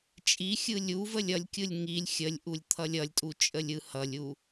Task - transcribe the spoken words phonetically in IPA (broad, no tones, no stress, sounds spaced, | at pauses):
t͡ʃʼ i xʲ ɯ lʲ u v ə lʲ ʌ lʲ kʲ ɯ lʲ ŋ i lʲ xʲ ə lʲ ʔ u lʲ t̪ʰ ʌ lʲ ʌ lʲ tʼ u t͡ʃʼ ə lʲ ɯ h ʌ lʲ u